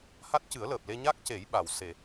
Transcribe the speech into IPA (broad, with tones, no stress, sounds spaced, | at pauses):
h a˦˥ t̚ c ɨ˨˩˦ ə̯ l əː˨˩ p̚ l e˧ ɲ a˦˥ k̚ c e˨˩˦ j ɓ a˨˩ w s e˨˩˨